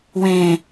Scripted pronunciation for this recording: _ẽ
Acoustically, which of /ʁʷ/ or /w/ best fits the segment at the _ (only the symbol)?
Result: w